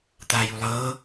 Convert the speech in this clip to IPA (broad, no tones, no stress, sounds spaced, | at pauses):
t̪ aː j u lˠ ɤː